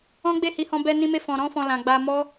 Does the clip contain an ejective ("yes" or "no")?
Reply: no